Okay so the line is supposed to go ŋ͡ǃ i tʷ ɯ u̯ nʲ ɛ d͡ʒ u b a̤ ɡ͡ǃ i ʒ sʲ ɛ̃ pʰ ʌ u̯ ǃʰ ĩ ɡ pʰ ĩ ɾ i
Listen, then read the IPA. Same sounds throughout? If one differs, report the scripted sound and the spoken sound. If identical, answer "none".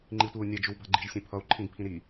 none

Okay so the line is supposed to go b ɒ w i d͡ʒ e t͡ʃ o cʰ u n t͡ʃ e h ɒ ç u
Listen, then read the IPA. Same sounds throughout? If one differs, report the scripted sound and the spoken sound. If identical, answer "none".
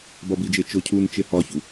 w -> b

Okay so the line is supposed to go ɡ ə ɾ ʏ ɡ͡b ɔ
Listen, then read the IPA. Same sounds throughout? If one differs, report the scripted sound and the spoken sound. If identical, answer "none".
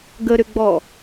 none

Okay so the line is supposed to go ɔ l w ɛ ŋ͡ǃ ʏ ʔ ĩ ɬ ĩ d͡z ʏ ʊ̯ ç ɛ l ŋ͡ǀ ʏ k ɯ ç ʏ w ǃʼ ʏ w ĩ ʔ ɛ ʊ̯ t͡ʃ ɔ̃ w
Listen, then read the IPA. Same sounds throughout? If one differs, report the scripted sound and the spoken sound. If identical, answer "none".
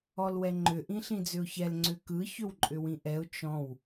none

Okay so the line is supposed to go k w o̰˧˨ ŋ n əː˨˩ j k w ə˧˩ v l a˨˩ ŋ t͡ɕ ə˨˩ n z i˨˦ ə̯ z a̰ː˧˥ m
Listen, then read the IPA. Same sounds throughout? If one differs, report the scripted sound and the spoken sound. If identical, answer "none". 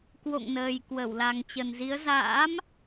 v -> w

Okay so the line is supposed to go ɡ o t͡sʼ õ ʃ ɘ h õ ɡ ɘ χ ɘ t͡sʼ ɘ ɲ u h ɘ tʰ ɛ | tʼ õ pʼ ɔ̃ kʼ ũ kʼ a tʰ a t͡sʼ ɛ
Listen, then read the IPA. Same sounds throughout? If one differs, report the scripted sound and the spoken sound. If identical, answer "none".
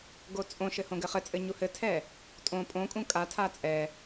ɔ̃ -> õ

